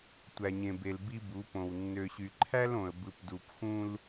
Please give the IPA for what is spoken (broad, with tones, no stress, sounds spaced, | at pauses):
tʷ æ˨ ɲ ẽ˨ b e˨ l b i˦ b u˨˦ p õ˨ w nː ø˨ ɕ y˨ ǃʰ æ˦ l õ˨ ə̯ b ɯ˨ p d u˨ p x ũ˦ l